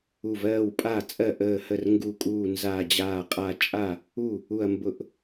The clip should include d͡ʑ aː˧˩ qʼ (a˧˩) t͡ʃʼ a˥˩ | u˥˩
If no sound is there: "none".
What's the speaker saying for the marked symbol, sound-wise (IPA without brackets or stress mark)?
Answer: a˧˩